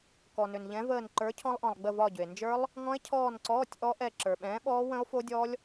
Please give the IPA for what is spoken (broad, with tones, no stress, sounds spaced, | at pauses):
k ɔ˩ n ʏ˩ n ʎ ɛ̃˨˥ v əː˦˨ n ǃ ə˞˨˥ cʰ ɔ̃˦˥ lˠ ʔ ɔ̃˩ lˠ ɡ͡b ə˦˨ v ɒ˦˨ ɟ ʏ˩ e̯ n d͡ʒ ə˞˦˥ lˠ | ŋ ɔ̃˦˥ e̯ cʰ ɔː˦˨ n ǀ ɔː˧˥˧ tʲ ʔ ɔ˦˥ ʔ ɛ˦˨ ǁ ə˞˩ ɓ ɛ̃ː˨˥ ɓ ɔː˦˥ w ə̃˦˥ o̯ f o˦˥ dʲ ɔ˦˥ lʲ